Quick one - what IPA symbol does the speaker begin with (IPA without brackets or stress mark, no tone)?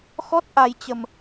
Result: x